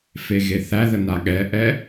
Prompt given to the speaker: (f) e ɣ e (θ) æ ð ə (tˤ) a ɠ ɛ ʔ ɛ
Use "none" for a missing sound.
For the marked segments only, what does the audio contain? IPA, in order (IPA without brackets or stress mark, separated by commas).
f, θ, n